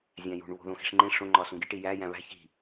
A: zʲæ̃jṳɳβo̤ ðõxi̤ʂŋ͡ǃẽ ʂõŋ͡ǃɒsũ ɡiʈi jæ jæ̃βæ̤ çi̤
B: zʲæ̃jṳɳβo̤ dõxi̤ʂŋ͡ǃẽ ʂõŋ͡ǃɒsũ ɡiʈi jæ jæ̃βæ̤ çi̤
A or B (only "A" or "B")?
A